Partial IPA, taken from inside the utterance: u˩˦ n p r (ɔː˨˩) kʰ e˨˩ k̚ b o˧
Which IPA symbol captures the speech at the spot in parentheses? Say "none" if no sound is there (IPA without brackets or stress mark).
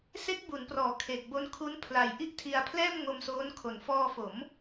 ɔː˨˩